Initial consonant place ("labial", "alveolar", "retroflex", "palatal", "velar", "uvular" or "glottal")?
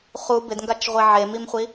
uvular